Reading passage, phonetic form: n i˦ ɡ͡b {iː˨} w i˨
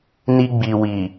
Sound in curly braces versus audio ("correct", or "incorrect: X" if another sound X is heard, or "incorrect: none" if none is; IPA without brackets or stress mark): incorrect: i˨